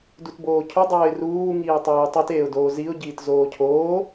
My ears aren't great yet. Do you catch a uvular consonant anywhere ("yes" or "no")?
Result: no